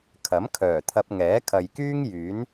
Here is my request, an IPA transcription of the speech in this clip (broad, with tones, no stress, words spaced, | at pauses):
kʰɐ˨˥m kʰœː˨˩t̪ʰɐ˧p̚ ŋɛː˨˥kʰɐ˨jkyː˥ŋ jyː˨˥n